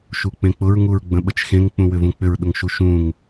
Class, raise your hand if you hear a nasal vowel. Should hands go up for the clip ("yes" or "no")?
yes